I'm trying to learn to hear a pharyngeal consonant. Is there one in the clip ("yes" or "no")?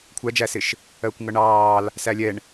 no